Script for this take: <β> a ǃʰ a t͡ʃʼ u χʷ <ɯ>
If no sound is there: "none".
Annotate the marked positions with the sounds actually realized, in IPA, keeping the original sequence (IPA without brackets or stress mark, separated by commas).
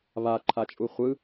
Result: β, ɯ